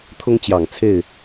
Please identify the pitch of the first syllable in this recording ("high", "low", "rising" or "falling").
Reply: high